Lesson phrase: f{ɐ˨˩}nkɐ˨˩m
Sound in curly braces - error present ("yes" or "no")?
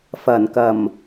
no